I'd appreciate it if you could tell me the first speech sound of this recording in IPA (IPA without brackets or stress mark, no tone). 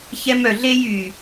ç